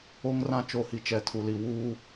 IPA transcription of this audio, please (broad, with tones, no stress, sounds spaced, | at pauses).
o˦ ŋ r ã˦ t͡ʃ o˨ h i˨ t͡ʃ ɛ˨ tʰ u˨ l i˨ w uː˦